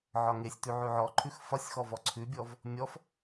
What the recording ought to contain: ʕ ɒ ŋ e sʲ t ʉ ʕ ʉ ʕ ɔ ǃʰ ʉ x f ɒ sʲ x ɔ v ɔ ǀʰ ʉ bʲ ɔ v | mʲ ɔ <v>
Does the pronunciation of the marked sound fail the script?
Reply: yes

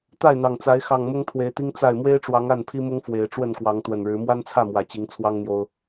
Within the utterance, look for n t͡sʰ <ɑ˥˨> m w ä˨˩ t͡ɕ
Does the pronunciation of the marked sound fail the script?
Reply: yes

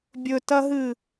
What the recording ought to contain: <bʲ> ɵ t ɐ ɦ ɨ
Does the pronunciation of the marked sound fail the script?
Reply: no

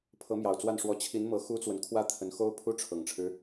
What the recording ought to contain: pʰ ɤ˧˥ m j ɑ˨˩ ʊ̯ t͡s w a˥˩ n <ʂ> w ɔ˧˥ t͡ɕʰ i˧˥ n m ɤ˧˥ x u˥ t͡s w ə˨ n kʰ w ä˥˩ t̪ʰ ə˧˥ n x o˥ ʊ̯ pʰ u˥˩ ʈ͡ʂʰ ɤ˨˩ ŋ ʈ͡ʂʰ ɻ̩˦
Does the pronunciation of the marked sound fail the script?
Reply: no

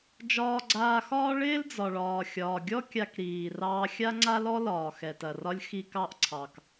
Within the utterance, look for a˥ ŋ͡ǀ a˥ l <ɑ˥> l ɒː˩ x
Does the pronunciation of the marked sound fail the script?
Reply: yes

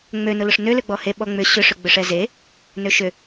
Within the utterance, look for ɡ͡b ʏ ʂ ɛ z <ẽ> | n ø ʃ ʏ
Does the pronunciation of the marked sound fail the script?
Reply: yes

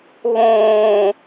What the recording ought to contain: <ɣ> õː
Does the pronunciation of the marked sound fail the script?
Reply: no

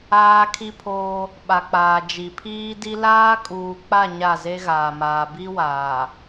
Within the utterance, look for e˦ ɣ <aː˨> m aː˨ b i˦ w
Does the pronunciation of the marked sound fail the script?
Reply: no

